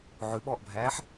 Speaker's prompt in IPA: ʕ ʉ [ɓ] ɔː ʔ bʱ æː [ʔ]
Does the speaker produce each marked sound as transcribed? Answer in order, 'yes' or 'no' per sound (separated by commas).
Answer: yes, no